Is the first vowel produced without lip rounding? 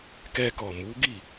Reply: yes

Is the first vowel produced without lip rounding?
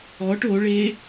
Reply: no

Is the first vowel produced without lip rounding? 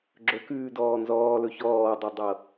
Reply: no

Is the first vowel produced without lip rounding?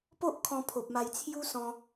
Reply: no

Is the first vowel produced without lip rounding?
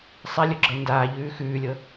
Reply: yes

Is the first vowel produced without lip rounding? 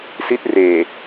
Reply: yes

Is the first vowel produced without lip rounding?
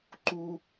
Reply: no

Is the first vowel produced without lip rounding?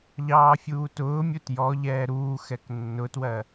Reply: yes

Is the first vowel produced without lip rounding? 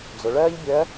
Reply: no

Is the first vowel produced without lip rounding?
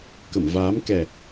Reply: yes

